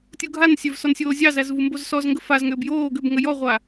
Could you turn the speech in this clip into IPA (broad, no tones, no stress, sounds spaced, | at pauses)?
tʲ u ɡʱ a n sʲ œ v s ɔ n sʲ oː zʲ ɑ z æ z v u m b o z s ɔ z ŋ ɡ ə f a z ŋ ʏː b j oː ɡ ʏ b ŋ ə j ɔ ʁʷ a